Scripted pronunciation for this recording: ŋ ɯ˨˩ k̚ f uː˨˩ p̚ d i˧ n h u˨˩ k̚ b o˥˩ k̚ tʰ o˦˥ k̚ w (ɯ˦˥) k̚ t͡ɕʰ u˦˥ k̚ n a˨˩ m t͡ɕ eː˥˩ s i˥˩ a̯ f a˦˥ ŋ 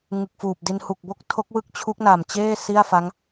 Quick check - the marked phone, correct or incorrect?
correct